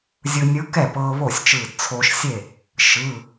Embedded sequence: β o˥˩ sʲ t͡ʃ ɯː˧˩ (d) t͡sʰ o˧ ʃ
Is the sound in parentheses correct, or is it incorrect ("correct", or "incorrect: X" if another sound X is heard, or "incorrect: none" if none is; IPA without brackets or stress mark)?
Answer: correct